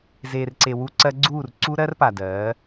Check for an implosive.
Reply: absent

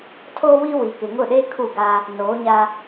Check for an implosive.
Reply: present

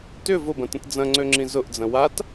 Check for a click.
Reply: present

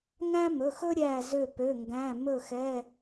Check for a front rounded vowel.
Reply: present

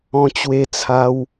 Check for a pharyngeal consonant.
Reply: absent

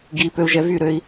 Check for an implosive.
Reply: absent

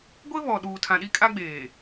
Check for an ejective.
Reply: present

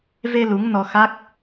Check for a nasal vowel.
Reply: absent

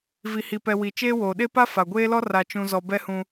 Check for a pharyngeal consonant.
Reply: absent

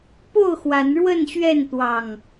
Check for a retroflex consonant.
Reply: present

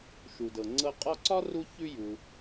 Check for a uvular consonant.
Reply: present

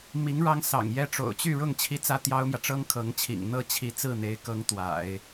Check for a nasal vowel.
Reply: absent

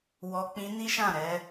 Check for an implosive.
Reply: absent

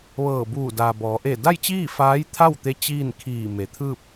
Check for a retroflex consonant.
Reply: absent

